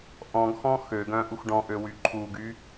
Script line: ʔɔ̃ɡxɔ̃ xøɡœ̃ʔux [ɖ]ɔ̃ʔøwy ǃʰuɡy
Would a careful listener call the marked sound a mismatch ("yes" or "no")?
no